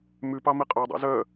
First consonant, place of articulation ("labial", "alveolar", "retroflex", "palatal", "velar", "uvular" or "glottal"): labial